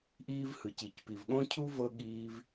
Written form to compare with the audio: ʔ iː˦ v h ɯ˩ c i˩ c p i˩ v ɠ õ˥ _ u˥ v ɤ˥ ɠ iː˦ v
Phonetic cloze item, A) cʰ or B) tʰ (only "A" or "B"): A